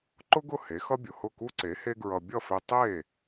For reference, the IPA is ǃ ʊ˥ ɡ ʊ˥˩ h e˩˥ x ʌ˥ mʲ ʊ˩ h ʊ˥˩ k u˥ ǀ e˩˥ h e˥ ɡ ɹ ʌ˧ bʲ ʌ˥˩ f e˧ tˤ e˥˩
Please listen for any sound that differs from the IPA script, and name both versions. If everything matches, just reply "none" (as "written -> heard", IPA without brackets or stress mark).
mʲ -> bʲ